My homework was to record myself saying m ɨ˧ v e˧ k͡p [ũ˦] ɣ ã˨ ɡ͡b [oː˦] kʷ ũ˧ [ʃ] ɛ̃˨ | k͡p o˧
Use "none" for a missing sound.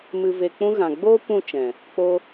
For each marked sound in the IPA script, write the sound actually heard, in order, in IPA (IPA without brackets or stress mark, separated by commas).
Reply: ũ˦, oː˦, t͡ʃ